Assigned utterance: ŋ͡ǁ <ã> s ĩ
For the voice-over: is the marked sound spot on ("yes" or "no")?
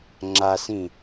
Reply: no